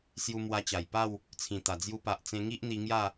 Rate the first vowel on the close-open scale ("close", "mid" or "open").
close